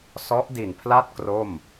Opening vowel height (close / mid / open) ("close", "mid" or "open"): mid